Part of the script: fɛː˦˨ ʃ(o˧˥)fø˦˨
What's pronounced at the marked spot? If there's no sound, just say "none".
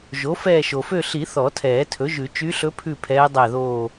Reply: o˩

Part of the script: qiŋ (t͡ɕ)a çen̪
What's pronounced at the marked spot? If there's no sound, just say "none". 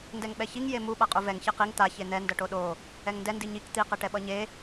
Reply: t̪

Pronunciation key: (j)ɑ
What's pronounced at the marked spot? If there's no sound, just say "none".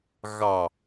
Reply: ɣ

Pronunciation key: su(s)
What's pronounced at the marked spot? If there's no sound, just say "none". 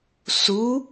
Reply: none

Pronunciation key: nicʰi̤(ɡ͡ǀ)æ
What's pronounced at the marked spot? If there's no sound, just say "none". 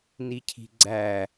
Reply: ɡ͡ǀ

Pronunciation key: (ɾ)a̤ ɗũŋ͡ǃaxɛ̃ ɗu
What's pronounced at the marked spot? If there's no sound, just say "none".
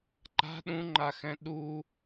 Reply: ǃ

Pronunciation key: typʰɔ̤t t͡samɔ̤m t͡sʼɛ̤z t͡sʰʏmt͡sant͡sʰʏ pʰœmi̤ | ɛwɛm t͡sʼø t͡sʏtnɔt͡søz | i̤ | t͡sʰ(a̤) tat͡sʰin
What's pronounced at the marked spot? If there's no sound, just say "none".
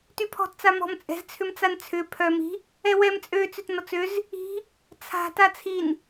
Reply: a̤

